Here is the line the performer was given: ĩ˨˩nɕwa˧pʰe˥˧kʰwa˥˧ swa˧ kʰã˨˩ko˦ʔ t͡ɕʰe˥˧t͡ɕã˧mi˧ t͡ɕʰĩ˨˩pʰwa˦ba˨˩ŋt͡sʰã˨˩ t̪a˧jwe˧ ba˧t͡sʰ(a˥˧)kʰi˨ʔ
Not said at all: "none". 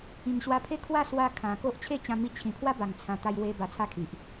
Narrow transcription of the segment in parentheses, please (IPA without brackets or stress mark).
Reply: a˥˧